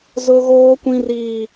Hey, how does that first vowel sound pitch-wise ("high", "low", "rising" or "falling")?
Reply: high